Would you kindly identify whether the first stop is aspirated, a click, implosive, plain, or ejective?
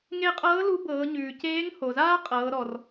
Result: ejective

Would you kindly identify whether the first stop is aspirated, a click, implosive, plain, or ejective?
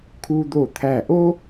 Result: aspirated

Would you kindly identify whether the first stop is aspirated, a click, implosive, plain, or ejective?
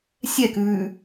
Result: plain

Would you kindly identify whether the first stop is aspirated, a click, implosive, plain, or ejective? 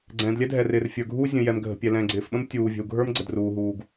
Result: click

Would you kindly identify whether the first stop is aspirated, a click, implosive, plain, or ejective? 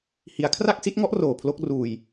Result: aspirated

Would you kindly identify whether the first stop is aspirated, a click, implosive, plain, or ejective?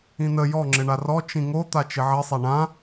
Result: click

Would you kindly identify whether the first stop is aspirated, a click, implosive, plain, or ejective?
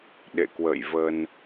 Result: implosive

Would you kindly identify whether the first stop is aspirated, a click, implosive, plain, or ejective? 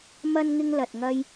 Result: plain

